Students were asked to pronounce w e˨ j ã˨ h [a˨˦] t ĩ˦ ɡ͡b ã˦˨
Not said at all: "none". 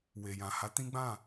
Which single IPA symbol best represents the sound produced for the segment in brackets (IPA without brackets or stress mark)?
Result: a˨˦